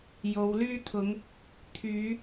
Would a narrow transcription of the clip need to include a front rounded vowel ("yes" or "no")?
yes